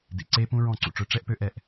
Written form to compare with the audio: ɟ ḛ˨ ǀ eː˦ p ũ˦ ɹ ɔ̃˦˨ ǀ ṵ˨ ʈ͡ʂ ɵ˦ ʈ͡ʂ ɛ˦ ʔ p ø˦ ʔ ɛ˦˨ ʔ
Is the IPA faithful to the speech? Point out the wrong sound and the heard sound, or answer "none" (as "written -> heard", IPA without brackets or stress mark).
ɟ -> d